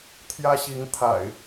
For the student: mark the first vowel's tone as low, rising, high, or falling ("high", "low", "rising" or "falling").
high